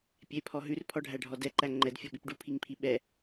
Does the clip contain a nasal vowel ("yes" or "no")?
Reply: no